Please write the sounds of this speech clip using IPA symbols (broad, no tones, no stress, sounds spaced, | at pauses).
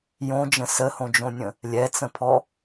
j õ d͡ʒ ə̃ s ə h õ d͡ʒ õ nʲ ə̃ | lʲ ɛ t͡s ə̃ pʰ ɔ